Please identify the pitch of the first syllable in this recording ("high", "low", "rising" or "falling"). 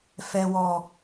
low